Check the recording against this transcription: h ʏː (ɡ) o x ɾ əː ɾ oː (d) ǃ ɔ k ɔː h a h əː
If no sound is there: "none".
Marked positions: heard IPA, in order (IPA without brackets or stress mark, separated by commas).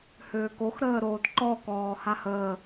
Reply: k, d